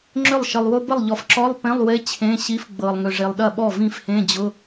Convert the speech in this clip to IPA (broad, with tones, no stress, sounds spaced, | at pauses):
ŋ͡ǁ ʏ˥˩ lˠ ʃ ə˨ lˠ w ʊ˧˥˧ b ə˥˩ lˠ ʎ ɔ˨ f ǁ ɔ˧˥˧ lˠ p ẽ˧˥˧ lˠ w e˧˥˧ t͡ɕʰ ẽ˧˥˧ ɕ i˧˥˧ f ɡ͡b ɤ˨ lˠ ŋ ʏ˨ ʐ e˨ lˠ ɗ ɐ˥˩ ɓ ɔ˥˩ v ĩ˥˩ f h ẽ˧˥˧ d͡ʑ ʊ˧˥˧